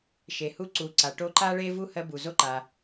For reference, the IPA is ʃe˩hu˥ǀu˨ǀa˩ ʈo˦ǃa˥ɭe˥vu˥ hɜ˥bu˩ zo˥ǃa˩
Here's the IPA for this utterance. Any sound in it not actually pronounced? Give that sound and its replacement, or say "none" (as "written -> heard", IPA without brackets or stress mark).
none